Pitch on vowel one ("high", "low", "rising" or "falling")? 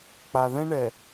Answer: low